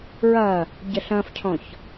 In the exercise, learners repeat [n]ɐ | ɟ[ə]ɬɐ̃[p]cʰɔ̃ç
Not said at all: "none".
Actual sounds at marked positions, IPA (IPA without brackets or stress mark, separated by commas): ɹ, ə, f